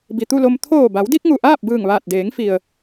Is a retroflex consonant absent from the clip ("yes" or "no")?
yes